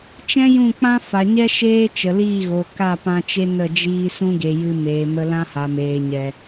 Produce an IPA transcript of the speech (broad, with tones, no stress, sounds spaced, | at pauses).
t͡ʃ ɛ̃˦ j ũ˦˨ k͡p ã˦ f a˨ ɲ ɛ˦ ʃ eː˦ t͡ʃ ə˨ l iː˦˨ ɣ o˨ k a˦˨ p ã˧ t͡ʃ e˦ n ə˦˨ d͡ʒ iː˧ s ũ˦ ɡ e˨ j ɨ˧ m eː˨ m ə˧ l ã˦ h a˨ m eː˨ ɲ ɛ˨